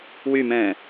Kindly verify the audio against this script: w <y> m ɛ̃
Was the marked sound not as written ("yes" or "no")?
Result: no